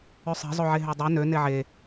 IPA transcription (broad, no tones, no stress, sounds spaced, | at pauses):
ø sˤ e̤ zˤ o ʕ e ɦ ø dˤ e n ø n e ʕ e